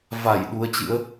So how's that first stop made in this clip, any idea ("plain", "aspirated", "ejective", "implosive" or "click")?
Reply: implosive